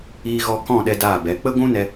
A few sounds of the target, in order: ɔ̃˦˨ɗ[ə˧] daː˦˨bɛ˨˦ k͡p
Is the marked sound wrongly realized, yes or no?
yes